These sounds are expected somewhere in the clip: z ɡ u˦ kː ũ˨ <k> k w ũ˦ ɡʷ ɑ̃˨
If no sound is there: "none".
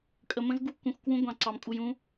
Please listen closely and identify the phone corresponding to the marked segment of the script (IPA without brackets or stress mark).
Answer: x